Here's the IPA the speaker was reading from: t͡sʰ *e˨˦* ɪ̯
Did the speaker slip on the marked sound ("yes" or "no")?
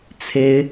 no